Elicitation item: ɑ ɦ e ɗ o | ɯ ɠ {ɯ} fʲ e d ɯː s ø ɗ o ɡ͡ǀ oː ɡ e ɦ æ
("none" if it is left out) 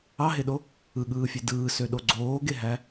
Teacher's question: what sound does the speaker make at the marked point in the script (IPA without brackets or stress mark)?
ɯː